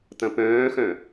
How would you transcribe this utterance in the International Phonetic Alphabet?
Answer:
tɐ̃pœ̃ːxœ̃

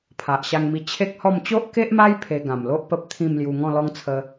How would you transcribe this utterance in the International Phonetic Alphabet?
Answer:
pʰa˨ʔ ɕa˧ŋmi˧ t͡ɕʰe˦k̚hɔ˥˧m t͡ɕo˦ʔke˦ʔma˦j pʰe˧ɡã˨˩mlo˦ʔ pə˦p̚ t̪ʰĩ˥˧mlju˧ ŋɔ̃˥˧lɔ˦ŋt͡sʰə˧

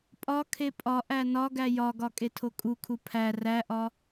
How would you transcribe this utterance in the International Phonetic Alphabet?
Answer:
pʼɒkʰe pʼɒʔæ nɒɡæ jɒɡɒ kʼetʰokʼukʰu pʰæ ræʔɒ

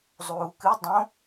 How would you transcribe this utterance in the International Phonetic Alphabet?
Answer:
zˤuːkɨ dˤõ

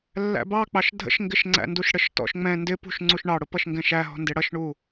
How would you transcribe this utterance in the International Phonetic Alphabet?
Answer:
lːæ̰bɑ k͡pɑʃdʱə̰ʃŋɡɪʃ ŋ͡ǀæ̰nduʃɽəʃtɔ̰ʃ ŋ͡mɛ̃ ndɪpṳʃŋ͡ǀuʃ ɳɑɽʊ pʌʃŋɡɛ̃ʃæɦɔ̤ ndɪɽʌʃɳu

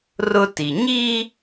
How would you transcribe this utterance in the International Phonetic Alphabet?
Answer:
rʊ˦ti˨ ɲi˦

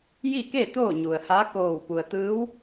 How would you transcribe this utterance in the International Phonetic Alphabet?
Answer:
ji˥˨ke˥˨ t̪oː˥˨ɲu˩ə̯ha˧˥ koː˧˩wpu˩ə̯ t̪ɯː˧˥w

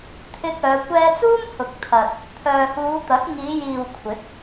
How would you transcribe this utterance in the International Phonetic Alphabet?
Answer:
t̪ʰɪ˧k̚œː˨˧ kʷɛː˧t͡suː˥mhʊ˨k̚ t̪ʰɐ˨t̚ | t̪ʰœː˨huː˨˧t̪ɐ˨˥k̚ ŋiː˨˧jiː˨w kʷʰɪ˨˥k̚

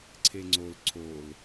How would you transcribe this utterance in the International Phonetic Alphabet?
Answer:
ǀʰeŋ͡ǀol ǀol

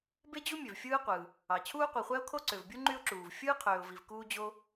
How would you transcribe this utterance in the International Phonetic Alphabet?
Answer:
be˥d͡ʑu˥mʲø˩v fʲɯː˥qʷɯː˩ | ɑ˩ t͡ɕʰuː˥qʷi˩χʷæ˥ʊ̯ kʰo˥ǀø˩vbʲu˥ ŋ͡ǃy˥ʊ̯ǁuː˩v fʲɯː˥qʰøː˩ʊ̯vi˩v kuː˥d͡ʑo˥

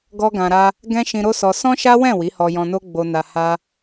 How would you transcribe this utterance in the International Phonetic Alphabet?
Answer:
ɡɔ˦ɡã˧ɾa˦ | ɡɛ̃˦ʃĩ˧ɾo˦ sɔ˧ sɔ̃˦ʃa˦wɛ̃˦˨ wi˨˦hɔ˧jɔ̃˧no˦ ɡ͡bo˧ na˧ha˦

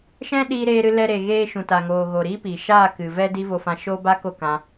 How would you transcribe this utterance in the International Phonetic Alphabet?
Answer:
ʃɛ̃˦ɗiː˧ ɾeː˧ɾɨ˧ lɛ˧ ɾe˨ɣeː˧ ʃũ˨ta˨ŋoː˨ ɣo˨ɾiː˦piː˨ ʃaː˦˨ kɨ˨ vɛ˦ di˦vo˧fã˧ ʃoː˦ba˦ko˦˨kã˧

